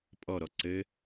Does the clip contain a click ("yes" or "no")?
yes